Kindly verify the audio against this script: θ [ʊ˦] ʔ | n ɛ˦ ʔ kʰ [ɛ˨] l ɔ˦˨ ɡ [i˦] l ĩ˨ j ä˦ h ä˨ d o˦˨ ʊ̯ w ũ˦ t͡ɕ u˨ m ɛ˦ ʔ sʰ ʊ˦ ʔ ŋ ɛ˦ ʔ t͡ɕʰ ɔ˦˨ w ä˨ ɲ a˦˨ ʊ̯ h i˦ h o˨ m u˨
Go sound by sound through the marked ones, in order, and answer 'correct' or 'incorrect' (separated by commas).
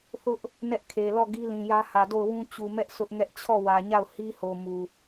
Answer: correct, incorrect, correct